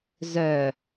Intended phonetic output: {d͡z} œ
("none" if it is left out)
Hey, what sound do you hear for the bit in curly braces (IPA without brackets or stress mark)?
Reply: z